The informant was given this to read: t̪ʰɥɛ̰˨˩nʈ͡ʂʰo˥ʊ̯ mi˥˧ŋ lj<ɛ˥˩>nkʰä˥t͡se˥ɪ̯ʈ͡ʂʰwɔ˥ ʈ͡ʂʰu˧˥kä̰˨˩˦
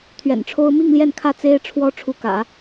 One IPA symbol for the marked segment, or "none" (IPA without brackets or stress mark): ɛ˥˩